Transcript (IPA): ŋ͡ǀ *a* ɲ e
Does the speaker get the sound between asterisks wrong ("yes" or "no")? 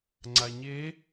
no